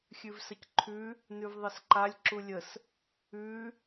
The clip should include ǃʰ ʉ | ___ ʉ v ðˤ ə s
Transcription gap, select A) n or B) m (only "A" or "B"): A